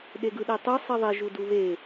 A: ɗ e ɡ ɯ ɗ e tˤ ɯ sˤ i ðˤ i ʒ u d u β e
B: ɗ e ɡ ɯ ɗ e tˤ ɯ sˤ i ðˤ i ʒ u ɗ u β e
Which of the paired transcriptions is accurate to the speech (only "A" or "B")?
A